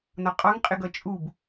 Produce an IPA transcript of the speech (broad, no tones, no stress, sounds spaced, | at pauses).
n ɒ qʼ ɑ ŋ qʼ ɪ ɡ ʌ t͡ʃʼ u b